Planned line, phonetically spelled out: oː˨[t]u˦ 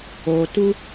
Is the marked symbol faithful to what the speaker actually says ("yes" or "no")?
yes